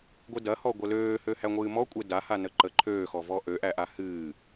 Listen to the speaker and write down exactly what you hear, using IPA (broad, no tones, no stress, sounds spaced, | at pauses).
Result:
ɡʷ ɨ d ɐ h ɔ ɡʷ ə l øː h ø h æ ŋʷ ɨː m ɔ kʷʼ e d a h a n ə ǃ ə ǃʰ øː x ɔ v ɔ ʔ ø ʔ æ ʔ a h ɨː